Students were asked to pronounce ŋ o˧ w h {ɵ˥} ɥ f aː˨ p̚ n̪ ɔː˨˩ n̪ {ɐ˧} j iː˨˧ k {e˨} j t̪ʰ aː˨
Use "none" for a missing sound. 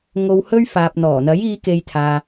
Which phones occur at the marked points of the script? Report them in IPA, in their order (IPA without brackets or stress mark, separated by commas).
ɵ˥, ɐ˨˥, e˨